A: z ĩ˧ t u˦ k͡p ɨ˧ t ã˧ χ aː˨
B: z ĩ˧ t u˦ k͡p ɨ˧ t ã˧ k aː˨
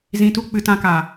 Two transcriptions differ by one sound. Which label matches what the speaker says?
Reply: B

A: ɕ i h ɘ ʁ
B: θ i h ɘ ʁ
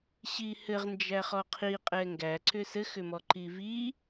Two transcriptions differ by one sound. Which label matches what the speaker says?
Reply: A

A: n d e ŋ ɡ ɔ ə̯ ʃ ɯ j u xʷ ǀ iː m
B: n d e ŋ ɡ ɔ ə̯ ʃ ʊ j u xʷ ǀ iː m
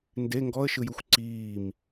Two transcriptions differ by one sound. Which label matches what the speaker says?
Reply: A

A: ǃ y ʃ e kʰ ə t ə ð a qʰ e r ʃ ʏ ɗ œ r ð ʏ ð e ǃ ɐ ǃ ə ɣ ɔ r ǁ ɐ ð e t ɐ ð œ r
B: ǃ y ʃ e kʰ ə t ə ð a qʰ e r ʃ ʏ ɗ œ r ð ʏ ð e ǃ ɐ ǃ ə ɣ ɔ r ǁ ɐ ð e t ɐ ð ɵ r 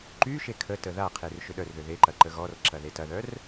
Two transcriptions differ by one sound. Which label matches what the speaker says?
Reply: A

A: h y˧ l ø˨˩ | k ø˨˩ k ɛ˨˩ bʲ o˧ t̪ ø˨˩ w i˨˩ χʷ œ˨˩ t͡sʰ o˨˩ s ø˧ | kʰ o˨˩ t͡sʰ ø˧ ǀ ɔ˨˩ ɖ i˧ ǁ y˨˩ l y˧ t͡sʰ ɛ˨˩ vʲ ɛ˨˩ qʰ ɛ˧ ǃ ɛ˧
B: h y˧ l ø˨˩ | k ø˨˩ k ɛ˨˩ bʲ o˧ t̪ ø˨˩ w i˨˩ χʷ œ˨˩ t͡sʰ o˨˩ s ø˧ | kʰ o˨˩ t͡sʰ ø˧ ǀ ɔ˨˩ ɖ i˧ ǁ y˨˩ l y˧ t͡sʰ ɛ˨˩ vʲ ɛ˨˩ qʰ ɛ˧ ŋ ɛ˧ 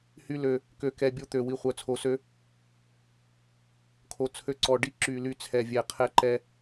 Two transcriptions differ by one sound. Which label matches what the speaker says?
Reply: A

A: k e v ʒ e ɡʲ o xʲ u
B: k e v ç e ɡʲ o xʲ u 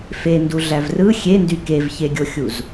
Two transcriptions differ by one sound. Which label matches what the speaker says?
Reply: B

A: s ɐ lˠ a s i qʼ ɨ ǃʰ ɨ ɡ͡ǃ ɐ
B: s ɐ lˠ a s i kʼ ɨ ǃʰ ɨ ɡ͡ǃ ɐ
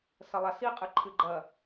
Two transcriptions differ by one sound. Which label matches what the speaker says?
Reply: A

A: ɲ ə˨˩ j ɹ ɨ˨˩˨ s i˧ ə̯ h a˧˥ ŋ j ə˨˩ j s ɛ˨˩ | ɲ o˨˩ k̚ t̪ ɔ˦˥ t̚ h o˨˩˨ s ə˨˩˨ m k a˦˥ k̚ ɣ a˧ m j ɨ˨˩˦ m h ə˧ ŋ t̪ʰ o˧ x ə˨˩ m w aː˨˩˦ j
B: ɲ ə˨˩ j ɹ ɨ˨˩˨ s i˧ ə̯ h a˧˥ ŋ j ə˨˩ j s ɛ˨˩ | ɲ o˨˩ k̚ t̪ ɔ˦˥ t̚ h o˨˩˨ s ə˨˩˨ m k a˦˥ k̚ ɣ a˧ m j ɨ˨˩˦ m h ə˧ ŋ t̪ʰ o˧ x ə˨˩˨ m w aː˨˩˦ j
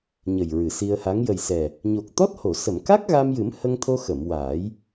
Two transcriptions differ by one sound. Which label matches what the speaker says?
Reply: B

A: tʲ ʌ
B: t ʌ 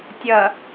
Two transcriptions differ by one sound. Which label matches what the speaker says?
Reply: A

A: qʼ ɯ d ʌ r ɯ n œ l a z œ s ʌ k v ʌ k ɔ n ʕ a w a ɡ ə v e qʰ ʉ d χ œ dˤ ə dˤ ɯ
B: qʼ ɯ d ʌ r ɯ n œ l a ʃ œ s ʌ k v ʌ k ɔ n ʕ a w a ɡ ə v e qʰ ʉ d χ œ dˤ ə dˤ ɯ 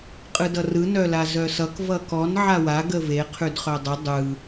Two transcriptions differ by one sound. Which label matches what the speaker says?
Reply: A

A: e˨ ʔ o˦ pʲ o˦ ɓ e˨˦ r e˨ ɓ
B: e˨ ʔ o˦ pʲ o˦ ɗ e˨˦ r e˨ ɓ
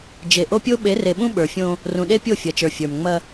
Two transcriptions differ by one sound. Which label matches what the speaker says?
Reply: A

